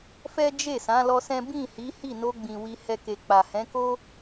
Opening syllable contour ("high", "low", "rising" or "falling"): high